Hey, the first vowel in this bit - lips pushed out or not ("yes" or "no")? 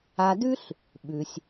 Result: no